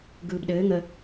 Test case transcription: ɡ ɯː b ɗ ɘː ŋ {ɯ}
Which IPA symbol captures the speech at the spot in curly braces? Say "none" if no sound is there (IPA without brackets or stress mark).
ə